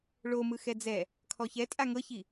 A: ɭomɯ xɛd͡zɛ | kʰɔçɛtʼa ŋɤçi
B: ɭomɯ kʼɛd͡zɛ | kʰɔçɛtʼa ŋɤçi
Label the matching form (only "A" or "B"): A